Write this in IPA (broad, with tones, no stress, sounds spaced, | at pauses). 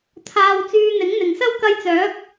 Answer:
t̪ʰ aː˧ w t͡s yː˧ n̪ ɪ˨˥ ŋ n̪ ɪ˨ ŋ s ɐ˥ w k ɐ˧ j t͡s œː˨˥ k̚